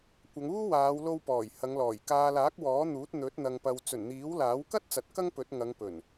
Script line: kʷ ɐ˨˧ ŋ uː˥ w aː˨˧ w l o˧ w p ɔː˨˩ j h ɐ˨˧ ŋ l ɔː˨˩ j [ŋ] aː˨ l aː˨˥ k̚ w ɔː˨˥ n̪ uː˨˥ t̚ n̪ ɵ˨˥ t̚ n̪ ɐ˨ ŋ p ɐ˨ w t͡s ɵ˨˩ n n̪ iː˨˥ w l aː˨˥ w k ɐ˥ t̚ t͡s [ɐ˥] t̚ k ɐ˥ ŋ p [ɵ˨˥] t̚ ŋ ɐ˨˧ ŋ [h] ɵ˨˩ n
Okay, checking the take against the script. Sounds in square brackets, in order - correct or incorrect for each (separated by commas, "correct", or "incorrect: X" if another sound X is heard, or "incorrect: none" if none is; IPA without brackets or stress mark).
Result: incorrect: k, incorrect: ɐ˨˥, correct, incorrect: p